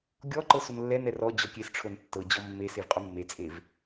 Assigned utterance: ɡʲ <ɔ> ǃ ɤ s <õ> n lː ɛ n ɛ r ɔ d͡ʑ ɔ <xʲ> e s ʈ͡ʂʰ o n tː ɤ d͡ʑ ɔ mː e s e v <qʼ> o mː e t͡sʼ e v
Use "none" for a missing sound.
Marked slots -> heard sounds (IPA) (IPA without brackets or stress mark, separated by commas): ɔ, o, kʲ, qʼ